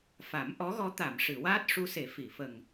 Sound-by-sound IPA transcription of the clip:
f a˨˩˦ m ʔ ɔ˧˥ ɣ ɔ˧˥ t̪ a˨˩˨ m ʂ ɨ˨˩˨ w aː˦˥ t̚ ʂ u˧ s e˨˩˦ f i˨˩˨ f ə˨˩ ŋ

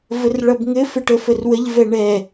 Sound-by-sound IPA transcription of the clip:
v ə r ɭ ʌ b ŋ ɘ f ɘ ʈ ə f ə r w ə ʎ v ɛ ɳ ɛ

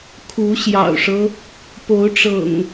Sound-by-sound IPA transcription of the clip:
kʰ u˨˦ ɕ j ɑ̰˨˩ ʊ̯ ʂ ɤ˦ | p o˨˦ ʊ̯ ʈ͡ʂ ɤ̰˨˩ ŋ

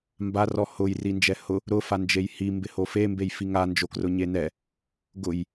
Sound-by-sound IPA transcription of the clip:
m b a r ɔ h ʊ j r i n d͡ʒ ɛ h ʊ | ɾ ʊ f a n d͡ʒ e j h i m b ɪ h o f e m b e j f i ŋ a n d͡ʒ o k r ʊ ɲ e n ɛ | ɡ ʊ j

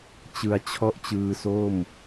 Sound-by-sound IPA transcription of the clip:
t͡ɕ ɯ˧ a̯ t͡ɕʰ ɔ˥˩ ʔ t͡ɕ ɯː˧ s o˥˩ m

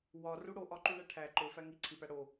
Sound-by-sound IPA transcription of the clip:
w ɒ r u ɽ o ʔ ɒ ǃ u ɳ æ ʈʰ æ ǃ o f æ ŋ i ǀʰ i p æ ɽ o

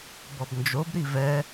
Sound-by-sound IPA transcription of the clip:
b ɔ b n d͡ʒ o b ɾ i v ɛ

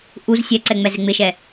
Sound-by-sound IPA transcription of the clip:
ʔ u z sʲ ɛ ǀ ɛ ŋ͡m ɛ z ɪ ŋ͡m ɪ ʃ ɛ

